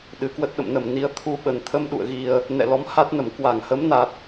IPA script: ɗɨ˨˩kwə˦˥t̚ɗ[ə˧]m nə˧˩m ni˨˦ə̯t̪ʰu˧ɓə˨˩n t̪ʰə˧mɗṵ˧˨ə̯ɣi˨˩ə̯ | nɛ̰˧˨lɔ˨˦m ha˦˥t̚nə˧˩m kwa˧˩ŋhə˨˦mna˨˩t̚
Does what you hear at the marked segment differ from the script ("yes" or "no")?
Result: yes